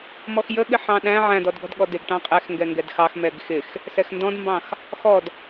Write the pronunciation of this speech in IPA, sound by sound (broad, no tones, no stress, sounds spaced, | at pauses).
m ɔ x j ə ɠ ɪ ħ ɑ̃ ɗ æ̃ ʕ æ̃ d ɔ d ɡ ɔ̤ d ɠ ɔ d ɪ ɡ ʈ ɑ̃ qʼ ɛ x ŋ ɡ ɛ ŋ ɡ ɛ d x ɑ x m ɛ ɡ x ɪ x | s ɛ x n d ɔ̃ d m b ɑ̃ x | x ɔ d